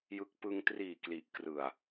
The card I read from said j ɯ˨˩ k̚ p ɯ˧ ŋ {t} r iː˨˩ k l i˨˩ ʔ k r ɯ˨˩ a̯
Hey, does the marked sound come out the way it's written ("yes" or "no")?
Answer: yes